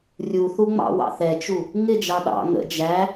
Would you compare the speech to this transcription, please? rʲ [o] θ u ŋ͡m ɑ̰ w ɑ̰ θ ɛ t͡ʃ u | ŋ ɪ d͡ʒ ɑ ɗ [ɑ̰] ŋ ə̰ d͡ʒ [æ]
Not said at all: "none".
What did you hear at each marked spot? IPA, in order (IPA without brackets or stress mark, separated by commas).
u, ɑ̰, æ